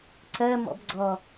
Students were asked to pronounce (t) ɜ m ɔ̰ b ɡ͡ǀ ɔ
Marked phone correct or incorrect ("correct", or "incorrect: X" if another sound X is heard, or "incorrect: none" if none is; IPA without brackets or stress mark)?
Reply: incorrect: ǀ